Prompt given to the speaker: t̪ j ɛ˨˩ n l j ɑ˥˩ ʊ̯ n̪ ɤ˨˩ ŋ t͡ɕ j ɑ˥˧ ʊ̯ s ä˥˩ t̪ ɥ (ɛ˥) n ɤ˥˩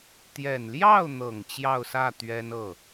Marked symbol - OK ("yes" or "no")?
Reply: yes